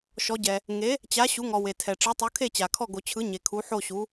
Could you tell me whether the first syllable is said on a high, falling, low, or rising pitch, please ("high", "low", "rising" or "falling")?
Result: rising